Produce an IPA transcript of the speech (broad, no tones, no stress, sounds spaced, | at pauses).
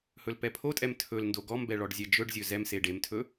h ɵ l p ɛ pʰ o tʼ ɛ m tʰ ɵ l n d o ɡ ɔ m b ɛ ɭ ɔ ɖ zʲ ɛ d͡ʒ ɵ ɖ zʲ ɵ z ɛ m s e ɖ e m tʰ ɵ